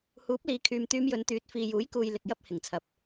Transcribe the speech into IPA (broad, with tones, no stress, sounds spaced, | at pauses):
h uː˨˥ p̚ l iː˨ kʰ yː˨ m t̪ yː˧ m j ɵ˨˧ n t̪ yː˨˥ t̚ f iː˨ j uː˨˥ j k uː˨ j l ɪ˨ k̚ j ɐ˥ p̚ h ɪ˨˩ ŋ t͡sʰ ɐ˨ p̚